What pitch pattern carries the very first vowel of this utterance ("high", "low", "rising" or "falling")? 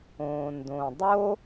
low